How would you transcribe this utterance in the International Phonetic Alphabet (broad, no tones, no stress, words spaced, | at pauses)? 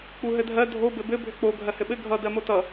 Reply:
k͡puɦɘdʱɜ dʱo bɘbɘ bʱʏk͡po ɡʱɜhɘɓɘ ɡʱʌ dɜmotʌ